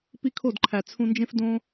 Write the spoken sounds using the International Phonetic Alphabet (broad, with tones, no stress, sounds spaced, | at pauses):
p i˦ kʰ o˦˨ d ǃʰ æ˨ t͡sʰ ũ˧ n d͡ʒ ẽ˦ f d õ˦